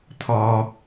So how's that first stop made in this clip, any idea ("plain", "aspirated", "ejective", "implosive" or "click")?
aspirated